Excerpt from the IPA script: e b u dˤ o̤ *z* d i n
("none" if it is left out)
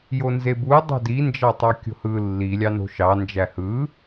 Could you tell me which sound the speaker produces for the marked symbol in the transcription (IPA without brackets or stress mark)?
none